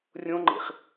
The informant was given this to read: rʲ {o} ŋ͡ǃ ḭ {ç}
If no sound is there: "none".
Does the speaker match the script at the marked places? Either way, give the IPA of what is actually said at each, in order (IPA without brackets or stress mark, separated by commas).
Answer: õ, χ